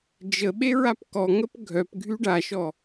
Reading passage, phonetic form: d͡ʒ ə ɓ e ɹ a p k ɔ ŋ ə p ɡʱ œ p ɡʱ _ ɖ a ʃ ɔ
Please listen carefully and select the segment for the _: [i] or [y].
y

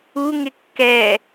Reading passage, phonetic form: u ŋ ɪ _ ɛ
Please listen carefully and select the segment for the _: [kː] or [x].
kː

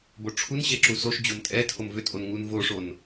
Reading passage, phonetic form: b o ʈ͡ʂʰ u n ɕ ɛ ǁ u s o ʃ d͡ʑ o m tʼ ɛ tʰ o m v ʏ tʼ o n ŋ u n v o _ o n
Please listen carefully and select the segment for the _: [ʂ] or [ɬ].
ʂ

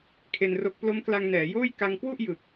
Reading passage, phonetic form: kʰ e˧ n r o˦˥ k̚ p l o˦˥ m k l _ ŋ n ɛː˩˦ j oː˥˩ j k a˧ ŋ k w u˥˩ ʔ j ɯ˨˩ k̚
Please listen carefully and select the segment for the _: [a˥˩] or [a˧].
a˧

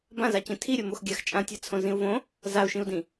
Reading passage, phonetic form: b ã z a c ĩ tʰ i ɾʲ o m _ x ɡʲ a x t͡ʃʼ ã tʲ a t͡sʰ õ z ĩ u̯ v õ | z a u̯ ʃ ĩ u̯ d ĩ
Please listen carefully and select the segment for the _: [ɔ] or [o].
o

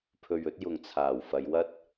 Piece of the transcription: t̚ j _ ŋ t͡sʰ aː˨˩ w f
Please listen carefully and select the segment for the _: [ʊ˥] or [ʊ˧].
ʊ˧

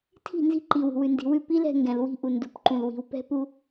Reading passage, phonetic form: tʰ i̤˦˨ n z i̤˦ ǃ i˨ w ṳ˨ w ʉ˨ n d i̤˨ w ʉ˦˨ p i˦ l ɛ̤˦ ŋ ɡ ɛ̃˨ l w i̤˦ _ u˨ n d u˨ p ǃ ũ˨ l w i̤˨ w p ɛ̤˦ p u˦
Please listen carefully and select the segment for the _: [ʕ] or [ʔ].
ʔ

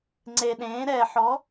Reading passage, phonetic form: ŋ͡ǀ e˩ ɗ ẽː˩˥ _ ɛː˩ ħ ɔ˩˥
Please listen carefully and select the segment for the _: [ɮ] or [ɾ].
ɾ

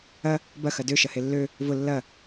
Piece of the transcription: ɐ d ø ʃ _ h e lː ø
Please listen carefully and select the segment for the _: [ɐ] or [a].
ɐ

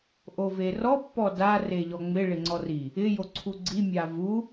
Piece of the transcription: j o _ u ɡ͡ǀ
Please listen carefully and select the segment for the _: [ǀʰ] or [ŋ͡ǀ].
ǀʰ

